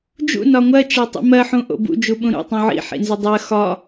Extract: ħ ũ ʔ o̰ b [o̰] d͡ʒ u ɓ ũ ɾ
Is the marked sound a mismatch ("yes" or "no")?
yes